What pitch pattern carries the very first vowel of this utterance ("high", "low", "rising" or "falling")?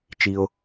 low